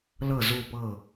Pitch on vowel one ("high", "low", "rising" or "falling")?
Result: falling